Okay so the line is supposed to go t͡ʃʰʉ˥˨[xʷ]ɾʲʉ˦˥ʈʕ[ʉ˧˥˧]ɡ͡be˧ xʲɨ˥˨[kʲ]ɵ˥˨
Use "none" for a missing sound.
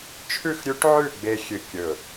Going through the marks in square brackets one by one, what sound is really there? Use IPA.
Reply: x, ʉ˥˨, kʲ

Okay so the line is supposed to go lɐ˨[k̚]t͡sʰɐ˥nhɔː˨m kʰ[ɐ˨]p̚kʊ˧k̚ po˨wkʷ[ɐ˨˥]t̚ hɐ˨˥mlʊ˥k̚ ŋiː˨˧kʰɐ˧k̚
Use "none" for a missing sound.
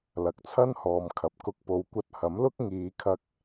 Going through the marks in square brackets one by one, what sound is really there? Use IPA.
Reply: k̚, ɐ˨, ɐ˧

